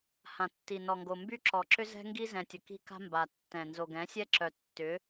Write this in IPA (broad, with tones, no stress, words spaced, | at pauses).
hã˨tːi˨ nɔ˨ŋɡo˨ mby˦ǁɔ˨ǁʏ˦zɛ̤˦ ŋɡi˦zɛ̃˨tʲə˨ ki̤˦ka̤˦ mba˨tːɛ̃˨ nzo˨ɡɛ̃˨˦sʲɛ˦ǁœ˨ tːʏ˨˦